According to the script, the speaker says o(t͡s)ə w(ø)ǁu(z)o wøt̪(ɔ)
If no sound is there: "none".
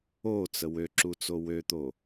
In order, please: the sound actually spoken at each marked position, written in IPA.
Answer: t͡s, ø, t͡s, o

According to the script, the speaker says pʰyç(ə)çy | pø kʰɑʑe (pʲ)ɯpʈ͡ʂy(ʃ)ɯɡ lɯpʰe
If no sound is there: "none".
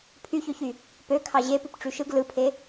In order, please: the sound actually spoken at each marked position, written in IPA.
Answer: ø, p, ʃ

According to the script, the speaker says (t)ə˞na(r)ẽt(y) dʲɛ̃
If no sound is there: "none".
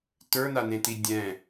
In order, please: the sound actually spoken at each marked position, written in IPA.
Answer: t, n, i

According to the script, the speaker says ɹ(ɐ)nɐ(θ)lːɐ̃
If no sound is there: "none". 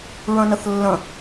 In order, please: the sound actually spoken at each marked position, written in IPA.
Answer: ɐ̃, θ

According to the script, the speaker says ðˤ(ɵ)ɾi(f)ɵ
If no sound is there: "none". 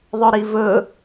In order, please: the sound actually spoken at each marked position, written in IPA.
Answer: ɵ, v

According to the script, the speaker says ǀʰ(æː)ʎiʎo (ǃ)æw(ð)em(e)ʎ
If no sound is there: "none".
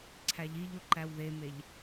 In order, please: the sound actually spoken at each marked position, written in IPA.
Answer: æ, ǃ, ð, e

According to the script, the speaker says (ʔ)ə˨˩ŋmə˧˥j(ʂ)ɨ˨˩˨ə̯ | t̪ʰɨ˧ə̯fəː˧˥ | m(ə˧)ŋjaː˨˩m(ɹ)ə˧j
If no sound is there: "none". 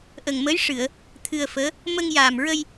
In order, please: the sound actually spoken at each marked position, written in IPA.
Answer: ʔ, ʂ, ə˧, ɹ

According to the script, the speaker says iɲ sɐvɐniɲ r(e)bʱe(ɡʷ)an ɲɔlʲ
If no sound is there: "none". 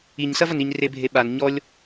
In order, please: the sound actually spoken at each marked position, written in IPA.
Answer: e, ɓ

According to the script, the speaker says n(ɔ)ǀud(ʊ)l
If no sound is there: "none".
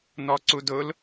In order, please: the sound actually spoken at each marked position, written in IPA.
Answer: ɔ, ʊ

